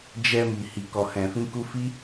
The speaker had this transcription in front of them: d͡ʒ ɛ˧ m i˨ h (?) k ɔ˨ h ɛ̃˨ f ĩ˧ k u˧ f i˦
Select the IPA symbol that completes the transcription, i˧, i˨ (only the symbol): i˨